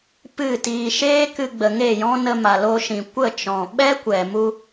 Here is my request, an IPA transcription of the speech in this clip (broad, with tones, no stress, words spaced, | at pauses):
pɨ˦˨tiː˧ ʃeː˦kɨ˧ɡ͡bə˨ ŋe˦˨jɔ̃˦ nə˧ma˨lo˧ʃĩ˨ kʷə˦˨t͡ʃɔ̃˨ ɓɛ˦kʷɛ˨mu˧